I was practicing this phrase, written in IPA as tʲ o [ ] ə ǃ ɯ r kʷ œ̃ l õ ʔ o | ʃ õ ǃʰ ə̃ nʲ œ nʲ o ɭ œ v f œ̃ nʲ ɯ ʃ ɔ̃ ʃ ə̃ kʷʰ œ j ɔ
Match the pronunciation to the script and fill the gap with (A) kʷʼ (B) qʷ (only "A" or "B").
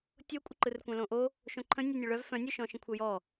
A